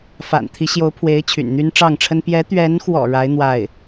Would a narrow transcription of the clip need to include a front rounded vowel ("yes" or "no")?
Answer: yes